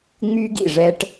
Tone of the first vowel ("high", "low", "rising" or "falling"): high